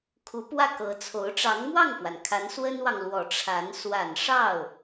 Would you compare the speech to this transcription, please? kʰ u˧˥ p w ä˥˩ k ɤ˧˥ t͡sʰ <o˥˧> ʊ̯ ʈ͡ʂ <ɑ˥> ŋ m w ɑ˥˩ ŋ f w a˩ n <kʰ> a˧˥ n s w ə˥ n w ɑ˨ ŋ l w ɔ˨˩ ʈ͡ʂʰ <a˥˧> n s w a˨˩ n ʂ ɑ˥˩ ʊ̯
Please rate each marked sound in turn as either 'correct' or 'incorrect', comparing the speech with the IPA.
incorrect: o˧˥, incorrect: ɑ˧˥, correct, incorrect: a˧˥

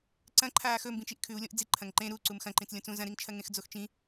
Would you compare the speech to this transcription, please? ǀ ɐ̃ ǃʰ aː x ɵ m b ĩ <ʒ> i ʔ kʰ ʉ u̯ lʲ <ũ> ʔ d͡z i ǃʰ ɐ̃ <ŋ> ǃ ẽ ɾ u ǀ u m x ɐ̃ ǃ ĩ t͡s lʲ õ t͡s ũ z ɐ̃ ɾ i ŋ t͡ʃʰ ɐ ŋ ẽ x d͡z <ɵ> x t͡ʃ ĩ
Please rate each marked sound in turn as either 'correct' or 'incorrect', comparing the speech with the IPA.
incorrect: t͡ʃ, incorrect: õ, correct, incorrect: o

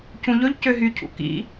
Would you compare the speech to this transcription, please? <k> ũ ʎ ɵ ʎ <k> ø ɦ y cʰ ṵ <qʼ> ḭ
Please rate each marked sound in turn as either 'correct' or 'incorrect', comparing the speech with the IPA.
incorrect: c, incorrect: c, incorrect: k

